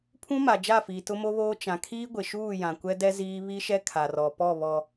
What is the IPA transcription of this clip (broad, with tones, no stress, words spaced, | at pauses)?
pʰũ˦ ma˨d͡ʒa˦˨fiː˨ tʊ˦mo˦βoː˦ t͡ʃã˨kʰiː˦ ɡʷɪ˨ʃuː˦˨jã˨ kʷɛ˦dɛ˦ ziː˦ βi˦ʃɛ˦ kʰa˨rɔ˨pɔ˦˨βɔ˨